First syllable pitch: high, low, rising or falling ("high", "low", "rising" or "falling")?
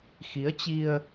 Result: rising